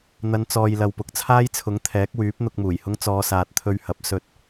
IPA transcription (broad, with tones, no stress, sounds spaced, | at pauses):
n̪ ɐ˨˧ n t͡s ɔː˨ j l ɐ˨ w p ʊ˨˥ k̚ t͡sʰ aː˥ j t͡sʰ ʊ˨˥ ŋ t̪ʰ ɛː˨˥ k̚ w yː˨˥ p̚ n̪ ʊ˧ k̚ m uː˨˩ j h ʊ˥ ŋ t͡s ɔː˨˧ s aː˨ t̚ t̪ʰ ɵ˧ ɥ h ɐ˨˥ p̚ s ɵ˧ t̚